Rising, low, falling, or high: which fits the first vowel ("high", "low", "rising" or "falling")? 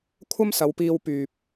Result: high